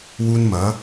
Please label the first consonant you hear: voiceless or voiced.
voiced